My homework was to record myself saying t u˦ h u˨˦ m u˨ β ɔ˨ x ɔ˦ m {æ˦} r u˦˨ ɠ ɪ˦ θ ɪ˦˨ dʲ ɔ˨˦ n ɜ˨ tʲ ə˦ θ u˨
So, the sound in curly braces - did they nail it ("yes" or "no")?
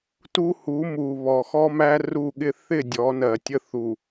yes